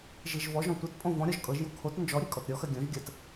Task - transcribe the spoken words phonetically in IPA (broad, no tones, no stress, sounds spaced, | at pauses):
ʒ i ʒ v ɔ ʒ ɔ̃ tʷ e t pʼ õ v ɔ̃ ɾʲ ɔ ʒ kʼ ɤ ʒ j o kʰ o t n d͡ʒ ɔ ɾʲ e kʼ ɔ t ɾʲ ɔ x ɜ ɡʲ õ ʒ ɡʲ ɜ t